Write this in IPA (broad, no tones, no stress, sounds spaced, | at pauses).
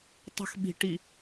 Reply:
tˤ ə̤ x ɓ i̤ ʈ i